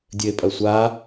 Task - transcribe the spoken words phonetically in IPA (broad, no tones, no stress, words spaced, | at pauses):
dʲɘe̯pʼɐsʷa